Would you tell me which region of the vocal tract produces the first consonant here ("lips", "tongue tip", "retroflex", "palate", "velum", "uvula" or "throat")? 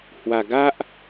throat